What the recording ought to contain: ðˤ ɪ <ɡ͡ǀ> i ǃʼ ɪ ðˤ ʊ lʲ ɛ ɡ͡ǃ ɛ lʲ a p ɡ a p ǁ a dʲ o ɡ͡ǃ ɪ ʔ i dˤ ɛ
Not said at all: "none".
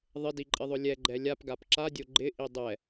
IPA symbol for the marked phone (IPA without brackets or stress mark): d